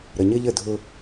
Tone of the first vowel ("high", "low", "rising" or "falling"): low